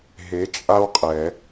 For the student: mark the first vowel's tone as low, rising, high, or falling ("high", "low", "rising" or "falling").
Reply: rising